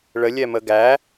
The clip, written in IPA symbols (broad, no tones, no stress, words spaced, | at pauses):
ɭəlʲɛmə ɡæ